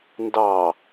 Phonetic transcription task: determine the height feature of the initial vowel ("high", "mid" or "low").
low